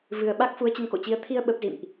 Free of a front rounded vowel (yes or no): yes